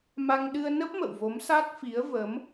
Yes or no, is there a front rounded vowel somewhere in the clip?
no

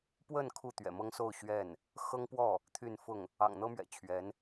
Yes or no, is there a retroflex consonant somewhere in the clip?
no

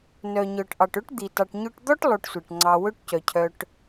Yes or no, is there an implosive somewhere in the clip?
no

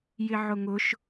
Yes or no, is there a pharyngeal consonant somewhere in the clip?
yes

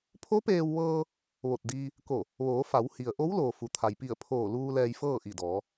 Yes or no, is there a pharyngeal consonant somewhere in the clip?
no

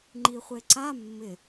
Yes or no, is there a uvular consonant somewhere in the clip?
yes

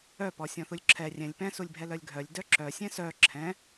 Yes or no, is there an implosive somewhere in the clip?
no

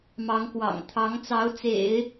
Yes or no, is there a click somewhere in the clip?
no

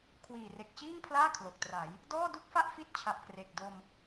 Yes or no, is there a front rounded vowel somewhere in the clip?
no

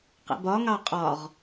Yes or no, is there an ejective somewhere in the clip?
yes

